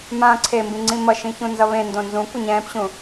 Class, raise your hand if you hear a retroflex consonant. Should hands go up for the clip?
no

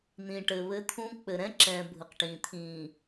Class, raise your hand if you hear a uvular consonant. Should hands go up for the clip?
yes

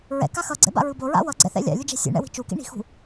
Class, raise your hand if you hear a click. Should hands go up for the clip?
yes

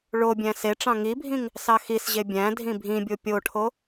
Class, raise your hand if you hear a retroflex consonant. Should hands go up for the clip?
yes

